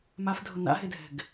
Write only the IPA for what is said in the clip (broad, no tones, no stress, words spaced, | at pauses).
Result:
mafdʱʊ na̰ɦedʱɛ̤ɡ